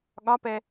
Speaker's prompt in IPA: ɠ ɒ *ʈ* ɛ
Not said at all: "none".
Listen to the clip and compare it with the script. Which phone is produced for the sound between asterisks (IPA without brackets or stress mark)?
p